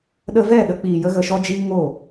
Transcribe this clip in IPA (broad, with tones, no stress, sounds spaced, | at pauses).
ɗ ə˧ v ɛ˦˨ ɗ ə˧ k͡p iː˨ j ə˧ ɣ ə˨ ʃ ɔ˧ d͡ʒ iː˧ ŋ oː˦˨